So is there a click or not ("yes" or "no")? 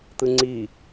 yes